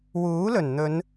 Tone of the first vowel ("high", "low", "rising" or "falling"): rising